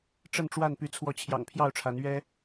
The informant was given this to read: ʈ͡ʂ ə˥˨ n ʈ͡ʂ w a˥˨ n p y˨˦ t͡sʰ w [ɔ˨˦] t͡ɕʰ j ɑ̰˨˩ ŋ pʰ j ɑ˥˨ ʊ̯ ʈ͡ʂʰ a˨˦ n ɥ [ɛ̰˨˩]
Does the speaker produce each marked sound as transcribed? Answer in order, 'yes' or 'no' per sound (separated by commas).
yes, no